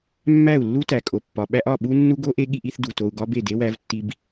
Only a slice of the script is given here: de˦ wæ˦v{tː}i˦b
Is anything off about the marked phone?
no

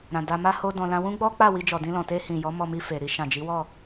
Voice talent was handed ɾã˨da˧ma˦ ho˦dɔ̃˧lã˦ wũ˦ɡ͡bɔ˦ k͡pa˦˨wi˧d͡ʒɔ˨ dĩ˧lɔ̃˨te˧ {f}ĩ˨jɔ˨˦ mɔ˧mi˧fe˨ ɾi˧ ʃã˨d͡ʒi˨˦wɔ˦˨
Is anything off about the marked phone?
yes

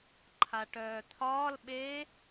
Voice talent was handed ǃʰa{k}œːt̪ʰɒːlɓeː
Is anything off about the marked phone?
yes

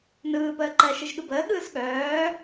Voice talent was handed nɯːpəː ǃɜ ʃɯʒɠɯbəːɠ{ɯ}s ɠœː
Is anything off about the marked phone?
yes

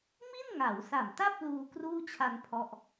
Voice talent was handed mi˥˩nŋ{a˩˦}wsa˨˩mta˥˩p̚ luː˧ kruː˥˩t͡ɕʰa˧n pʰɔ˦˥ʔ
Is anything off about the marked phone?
no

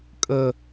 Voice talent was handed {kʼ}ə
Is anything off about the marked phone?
no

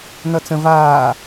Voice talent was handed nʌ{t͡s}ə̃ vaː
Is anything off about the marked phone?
no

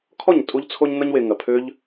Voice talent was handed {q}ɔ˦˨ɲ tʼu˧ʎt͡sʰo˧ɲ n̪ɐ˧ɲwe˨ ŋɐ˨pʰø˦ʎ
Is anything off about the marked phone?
yes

